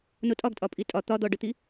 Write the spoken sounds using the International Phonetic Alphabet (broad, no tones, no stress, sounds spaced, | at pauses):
n o tʼ ɒ ɡ tʼ ɒ pʼ i tʼ ɒ t̪ ɒ d̪ ɔ ɖ ɵ t̪ i